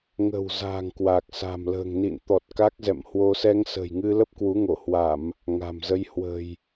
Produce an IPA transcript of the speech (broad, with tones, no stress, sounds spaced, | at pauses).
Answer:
ŋ ə̤˨˩ w z a̤˨˩ ŋ k w a˨˩ k̚ s a̤˨˩ m l ə̤ː˨˩ ŋ n ḭ˧˨ n t̪ ɔ˨˩ t̚ k a˦˥ k̚ z ɛ̰˧˨ m h w o˧ s ɛ˧ ŋ s ə̤˨˩ j ŋ ɨ˧ l ə˦˥ p̚ k w u˨˦ ŋ o˧˩ h w a˧˩˨ m | ŋ a̤˨˩ m z ə˧ j h w ə̤˨˩ j